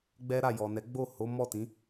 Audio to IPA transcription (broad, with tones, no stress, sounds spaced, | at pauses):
ɡ͡b ɛ˦ ɾ a˦˨ j ɔ˨ n ɛ˨˦ ɡ͡b o˦˨ h o˨˦ m ɔ˦˨ t ĩ˨˦